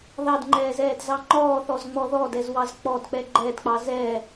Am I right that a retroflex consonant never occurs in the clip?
yes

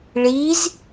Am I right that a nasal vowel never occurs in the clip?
yes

